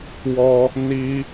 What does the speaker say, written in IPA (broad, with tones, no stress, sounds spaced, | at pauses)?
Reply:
w ɔ˧ | n i˦